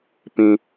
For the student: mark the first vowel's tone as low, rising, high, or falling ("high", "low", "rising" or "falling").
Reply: high